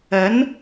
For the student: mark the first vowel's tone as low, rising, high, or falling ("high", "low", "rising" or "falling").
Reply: rising